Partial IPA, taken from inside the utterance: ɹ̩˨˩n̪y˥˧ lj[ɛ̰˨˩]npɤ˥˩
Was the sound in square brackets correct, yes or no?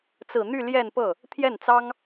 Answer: no